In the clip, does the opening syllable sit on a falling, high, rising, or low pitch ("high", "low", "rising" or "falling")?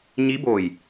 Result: rising